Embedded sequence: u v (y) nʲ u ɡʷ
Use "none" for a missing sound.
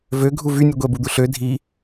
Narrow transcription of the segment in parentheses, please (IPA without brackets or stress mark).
y